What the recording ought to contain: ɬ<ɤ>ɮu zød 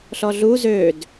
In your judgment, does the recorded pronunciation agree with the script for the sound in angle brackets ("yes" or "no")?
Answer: no